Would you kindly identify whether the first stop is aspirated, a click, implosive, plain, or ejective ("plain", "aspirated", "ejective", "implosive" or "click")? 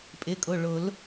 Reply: ejective